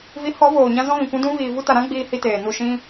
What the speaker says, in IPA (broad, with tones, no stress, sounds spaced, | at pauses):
v i˨˦ h ɔ˨˦ v oː˨ ɲ ã˧ z ɔ̃˦ ɣ ĩ˨ kʷ ũ˦ d ũ˦ v iː˨ v u˧ t a˨ ɾ ã˦ ɡ͡b iː˧ h i˧ t eː˨ n u˦˨ ʃ ĩ˧